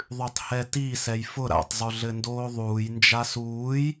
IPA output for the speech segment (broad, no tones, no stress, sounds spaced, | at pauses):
ðˤ ʉ tˤ h ɛ t i s ɛ j f ʊ ɾ a̰ tˤ zˤ ʉ ɮ ɘ n d oː ðˤ uː j n d͡ʒ a s uː j